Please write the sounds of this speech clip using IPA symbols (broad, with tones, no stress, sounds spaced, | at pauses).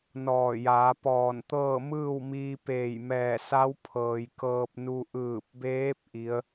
n ɔː˧˩ j aː˩˧ p ɔː˧˩ n t̪ ɤː˥˨ m ɯː˥˨ w m iː˧ p eː˧˩ j m ɛː˧˩ s a˧˥ w pʰ ɤː˩ j k ɤː˧ p̚ n u˧ ʔ ɯː˧˩ p̚ b eː˧˥ p̚ ʔ i˧˥ ə̯